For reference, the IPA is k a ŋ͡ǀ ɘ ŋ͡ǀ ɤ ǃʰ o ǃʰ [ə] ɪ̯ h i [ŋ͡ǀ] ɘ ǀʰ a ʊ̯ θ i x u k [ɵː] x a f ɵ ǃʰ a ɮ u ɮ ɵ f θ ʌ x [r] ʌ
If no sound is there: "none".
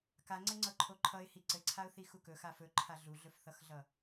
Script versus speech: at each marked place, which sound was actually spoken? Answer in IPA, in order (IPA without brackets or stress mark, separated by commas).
ʌ, ǀ, ɵ, ɮ